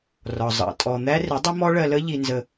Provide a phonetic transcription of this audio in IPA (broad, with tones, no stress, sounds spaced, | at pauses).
r ɒ˨ zˤ ɑ̰˨ tʼ ɔ˨ n̪ æ˦ r ɪ˨˦ dˤ ɪ˦ m ɔ˦ ɭ ɜ˧ l ə˦ ʎ i˧ n z ə˧